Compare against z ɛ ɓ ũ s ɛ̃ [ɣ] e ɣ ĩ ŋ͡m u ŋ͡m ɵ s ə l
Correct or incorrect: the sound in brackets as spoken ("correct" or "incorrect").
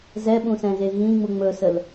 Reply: correct